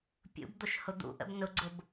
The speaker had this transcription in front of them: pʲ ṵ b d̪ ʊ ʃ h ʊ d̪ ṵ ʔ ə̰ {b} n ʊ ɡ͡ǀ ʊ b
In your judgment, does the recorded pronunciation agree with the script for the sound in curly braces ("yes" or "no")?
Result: yes